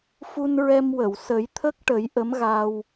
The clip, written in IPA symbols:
f u˧ n ɹ ɛ˧ m w ə˨˩˨ w s ə˨˩˦ j t̪ʰ ə˦˥ k̚ ʈ ə˨˩˦ j ʔ ə˧˥ m ɣ a˧ w

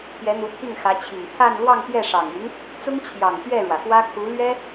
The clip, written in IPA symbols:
p j ɛ˧˥ n̪ u˧˥ pʰ i˥˩ ŋ x ä˧˥ t͡ɕʰ i˨˩ ŋ t̪ʰ a˥˧ n l w ɑ˥˧ ŋ p j ɛ˥˩ ʂ ɑ˨˩ ŋ y˧˥ n | t͡s ʊ˥ ŋ t͡ɕʰ j ɑ˨˩ ŋ t̪ ɥ ɛ˥˩ ɻ w ä˩ f w ä˥ kʰ u˧˥ l ɥ ɛ˥

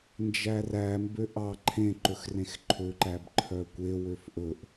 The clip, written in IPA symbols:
n d͡ʒ æ r æ m b ø ʔ ɑ ǃʰ ẽ ǃ ɵ x r ẽ x ǃʰ ø ǃ æ b ǃʰ œ kʷ e w ø f ʔ ɵ ʔ

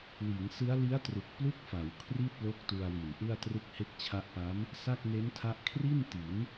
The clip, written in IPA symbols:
w iː˩˦ ŋ s ɯ˦˥ a̯ l i˦˥ a̯ t r u˨˩ k̚ p l u˥˩ k̚ f a˩˦ w kʰ r i˥˩ t̚ l o˦˥ k̚ t u˧ a̯ w i˨˩ n ʔ ɯ˥˩ a̯ t r ɯ˦˥ k̚ h e˦˥ k̚ t͡ɕʰ a˦˥ ʔ p a˦˥ m | s a˥˩ k̚ n e˦˥ n tʰ a˦˥ ʔ kʰ r i˥˩ n t i˩˦ n

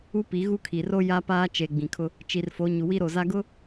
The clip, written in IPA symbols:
u˦ p i˨˦ ɣ u˦ kʰ i˨ r o˦ j a˦ p aː˦ t͡ʃ e˨ ɡ͡b ĩ˨ kʰ ʊ˦ | t͡ʃ i˨ r f o˨˦ ɲ u˨ w i˦ ɾ o˨ z a˦ ɡ ʊ˦

